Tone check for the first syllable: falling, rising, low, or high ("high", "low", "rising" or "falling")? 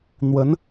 rising